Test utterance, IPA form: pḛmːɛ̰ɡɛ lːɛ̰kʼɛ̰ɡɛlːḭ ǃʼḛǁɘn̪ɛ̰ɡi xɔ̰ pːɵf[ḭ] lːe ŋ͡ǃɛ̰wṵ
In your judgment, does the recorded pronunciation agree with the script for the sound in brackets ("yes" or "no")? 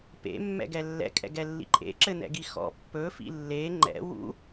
yes